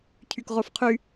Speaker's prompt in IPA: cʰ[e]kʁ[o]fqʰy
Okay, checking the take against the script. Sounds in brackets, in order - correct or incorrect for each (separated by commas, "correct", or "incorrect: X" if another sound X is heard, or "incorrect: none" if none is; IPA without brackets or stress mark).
incorrect: y, correct